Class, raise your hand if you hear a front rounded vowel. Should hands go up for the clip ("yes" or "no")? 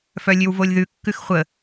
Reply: yes